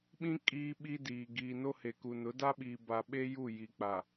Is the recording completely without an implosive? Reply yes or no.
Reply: no